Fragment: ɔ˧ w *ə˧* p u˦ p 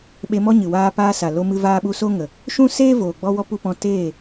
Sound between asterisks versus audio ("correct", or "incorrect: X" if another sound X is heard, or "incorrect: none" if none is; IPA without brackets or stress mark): incorrect: ɔ˧